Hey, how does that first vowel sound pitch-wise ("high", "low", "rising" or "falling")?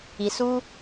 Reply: low